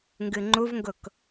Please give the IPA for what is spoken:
ŋ ɡ ɨ ŋ͡ǃ u v ŋ ɡ ʊ k

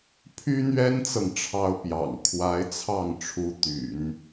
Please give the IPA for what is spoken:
pʰ y˥ n̪ ɥ ɛ˥ n t͡s ɤ˨ ŋ ʈ͡ʂʰ ɑ˥ ʊ̯ p j ɑ̰˨˩ ŋ kʰ w a˧˥ ɪ̯ t͡sʰ ɑ˥˩ ŋ ʈ͡ʂʰ u˧˥ t̪ y̰˨˩˦ n

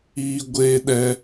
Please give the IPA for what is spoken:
iː˦ ɡʷ eː˦ ɗ ɛ˦

